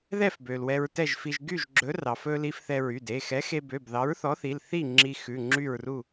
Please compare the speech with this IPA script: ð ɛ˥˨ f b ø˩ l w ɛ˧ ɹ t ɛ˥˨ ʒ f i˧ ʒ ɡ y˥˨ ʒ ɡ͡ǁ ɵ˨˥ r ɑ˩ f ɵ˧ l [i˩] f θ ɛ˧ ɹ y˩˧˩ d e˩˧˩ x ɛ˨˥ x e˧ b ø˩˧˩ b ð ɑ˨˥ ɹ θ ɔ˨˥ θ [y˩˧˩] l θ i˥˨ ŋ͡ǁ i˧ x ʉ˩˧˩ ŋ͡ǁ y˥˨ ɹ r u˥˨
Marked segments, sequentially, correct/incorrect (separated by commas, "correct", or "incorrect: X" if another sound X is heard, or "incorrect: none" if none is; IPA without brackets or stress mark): incorrect: i˧, incorrect: i˩˧˩